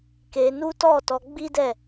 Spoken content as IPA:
k e˧ n u˦ t ɔ˦˨ t ɔ˧ ɡ͡b i˦ d ɛ˦˨

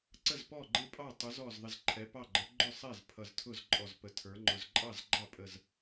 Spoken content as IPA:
ǀ ə˥˩ z p ɔ˥˩ ɡ͡ǃ ɪ˥˩ pʼ ɑ˥˩ tˤ ʊ˨˥ z ɔ˧˩ z ðˤ ɪ˧˩ z ǃʰ ɛ˨˥ p ɑ˥˩ ɡ͡ǃ ə˨˥ ɡ͡ǃ ʊ˥˩ sˤ ɛ˥˩ z pʰ ʌ˧˩ z tʰ ʊ˥˩ z ǃʼ ɔ˧˩ z p ə˨˥ tʰ ə˞˨˥ ŋ͡ǃ ʊ˧˩ z ǃʼ ɑ˥˩ z ɡ͡ǃ ɑ˥˩ pʼ ə˧˩ z

